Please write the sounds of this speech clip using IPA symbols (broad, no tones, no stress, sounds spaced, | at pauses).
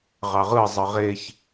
ʁ ɑ ʁ ɯ zˤ ɯ ʁ e ç